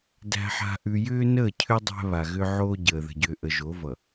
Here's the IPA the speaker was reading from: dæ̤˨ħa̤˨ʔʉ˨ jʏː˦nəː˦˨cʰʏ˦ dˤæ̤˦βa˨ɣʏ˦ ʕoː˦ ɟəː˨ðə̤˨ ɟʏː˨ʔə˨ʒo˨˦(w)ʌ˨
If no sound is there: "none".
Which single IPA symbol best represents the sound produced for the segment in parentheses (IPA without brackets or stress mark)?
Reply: v